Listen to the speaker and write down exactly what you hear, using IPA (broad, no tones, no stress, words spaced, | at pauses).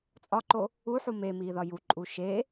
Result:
t͡sʼɒǃo | uħu me miːðɒjuǃʼu ʃe